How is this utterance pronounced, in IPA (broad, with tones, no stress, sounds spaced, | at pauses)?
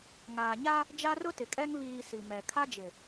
ŋ aː˨ ɲ a˦ | d͡ʒ a˦ r ʊ˦ t ɪ˨ kʼ ɛ˦ ŋ β iː˨ s i˨ m ɛ˨ kʰ a˦ d͡ʒ ɪ˨